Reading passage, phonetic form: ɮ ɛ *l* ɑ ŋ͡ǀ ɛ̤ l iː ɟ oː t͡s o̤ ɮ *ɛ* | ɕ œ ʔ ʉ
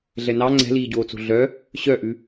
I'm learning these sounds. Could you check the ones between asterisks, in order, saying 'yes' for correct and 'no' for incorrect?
no, no

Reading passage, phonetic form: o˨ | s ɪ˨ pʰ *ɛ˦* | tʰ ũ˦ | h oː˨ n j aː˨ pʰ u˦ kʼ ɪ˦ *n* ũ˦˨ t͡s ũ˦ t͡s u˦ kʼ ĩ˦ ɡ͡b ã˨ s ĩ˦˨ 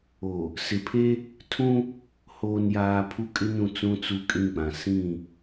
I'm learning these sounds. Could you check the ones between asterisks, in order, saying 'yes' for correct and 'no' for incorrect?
no, yes

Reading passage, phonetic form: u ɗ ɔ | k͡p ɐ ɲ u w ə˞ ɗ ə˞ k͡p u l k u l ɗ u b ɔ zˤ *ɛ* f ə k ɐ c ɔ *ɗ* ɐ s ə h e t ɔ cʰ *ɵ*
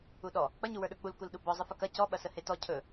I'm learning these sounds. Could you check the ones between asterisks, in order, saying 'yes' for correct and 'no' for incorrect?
no, no, yes

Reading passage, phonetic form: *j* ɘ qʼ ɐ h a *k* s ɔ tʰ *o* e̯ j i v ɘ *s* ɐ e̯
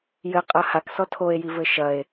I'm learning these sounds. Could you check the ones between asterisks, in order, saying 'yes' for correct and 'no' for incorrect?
yes, yes, yes, no

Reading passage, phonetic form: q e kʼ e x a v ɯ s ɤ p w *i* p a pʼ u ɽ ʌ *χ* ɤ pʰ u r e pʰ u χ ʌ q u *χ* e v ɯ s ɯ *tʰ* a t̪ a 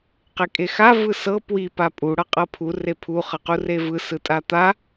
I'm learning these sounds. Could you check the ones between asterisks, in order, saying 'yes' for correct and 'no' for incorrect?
yes, no, no, no

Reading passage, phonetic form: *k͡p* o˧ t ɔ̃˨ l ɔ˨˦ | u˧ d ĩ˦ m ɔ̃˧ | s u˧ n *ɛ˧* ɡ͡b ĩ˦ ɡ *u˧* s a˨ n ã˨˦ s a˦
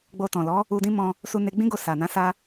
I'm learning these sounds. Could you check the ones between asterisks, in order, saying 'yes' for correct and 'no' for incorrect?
no, no, no

